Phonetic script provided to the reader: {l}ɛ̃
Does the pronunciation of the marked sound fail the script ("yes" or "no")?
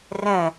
yes